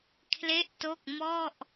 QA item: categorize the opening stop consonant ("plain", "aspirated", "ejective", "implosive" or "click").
aspirated